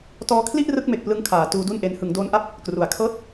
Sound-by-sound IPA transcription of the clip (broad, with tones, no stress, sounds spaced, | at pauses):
t ɔː˧ kʰ l i˥˩ ʔ r ɯ˦˥ k̚ m e˨˩ k̚ p l ɯ˦˥ ŋ kʰ aː˩˦ t uː˦˥ d u˥˩ n ʔ e˦˥ n h ɯ˩˦ ŋ d oː˦˥ n ʔ a˥˩ p̚ | k r u˩˦ a̯ kʰ ɤː˥˩ t̚